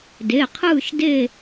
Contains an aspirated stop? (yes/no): yes